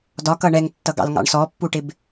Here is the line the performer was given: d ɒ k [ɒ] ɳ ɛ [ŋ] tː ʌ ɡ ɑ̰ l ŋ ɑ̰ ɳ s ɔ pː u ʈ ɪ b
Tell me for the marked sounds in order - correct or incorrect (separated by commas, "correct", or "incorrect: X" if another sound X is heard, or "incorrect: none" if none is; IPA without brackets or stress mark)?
incorrect: ʌ, correct